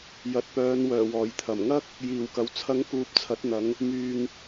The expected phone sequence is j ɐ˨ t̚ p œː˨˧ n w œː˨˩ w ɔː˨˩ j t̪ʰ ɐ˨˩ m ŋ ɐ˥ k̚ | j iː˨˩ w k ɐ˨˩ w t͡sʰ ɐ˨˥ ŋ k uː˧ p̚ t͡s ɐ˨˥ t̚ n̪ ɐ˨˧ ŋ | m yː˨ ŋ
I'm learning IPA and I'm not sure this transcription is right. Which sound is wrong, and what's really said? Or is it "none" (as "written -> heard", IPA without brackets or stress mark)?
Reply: t͡s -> t͡sʰ